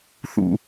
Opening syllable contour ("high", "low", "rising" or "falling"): low